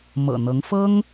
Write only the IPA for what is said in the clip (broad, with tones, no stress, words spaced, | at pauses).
mɤ̰˨˩n̪ɤ˧˥ŋ fɤ˥ŋ